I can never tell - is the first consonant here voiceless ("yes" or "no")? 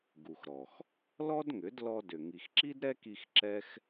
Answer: no